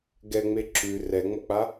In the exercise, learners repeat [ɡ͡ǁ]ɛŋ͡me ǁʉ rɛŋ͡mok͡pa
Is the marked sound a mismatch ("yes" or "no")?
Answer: yes